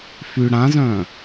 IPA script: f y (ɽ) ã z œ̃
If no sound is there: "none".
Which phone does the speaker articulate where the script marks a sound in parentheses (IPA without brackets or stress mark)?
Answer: ɽ